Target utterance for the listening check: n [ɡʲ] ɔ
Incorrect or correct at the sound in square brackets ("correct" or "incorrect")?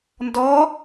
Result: incorrect